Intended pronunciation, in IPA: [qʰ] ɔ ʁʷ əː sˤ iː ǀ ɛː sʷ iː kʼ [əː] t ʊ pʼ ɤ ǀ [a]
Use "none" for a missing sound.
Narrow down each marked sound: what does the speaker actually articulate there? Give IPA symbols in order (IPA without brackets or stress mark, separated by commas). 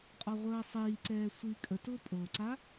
qʼ, ə, a